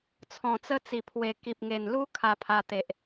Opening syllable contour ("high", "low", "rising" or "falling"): low